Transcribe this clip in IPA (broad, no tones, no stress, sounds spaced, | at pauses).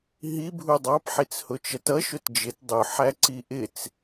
ɦ i bʱ u dˤ ɑ p ħ i t͡s h ʊ t͡ʃ ʌ t ʌ ʃ ʊ t d͡ʒ ɪ t dˤ ʊ ħ æ ǀ i ʔ ɪ t͡s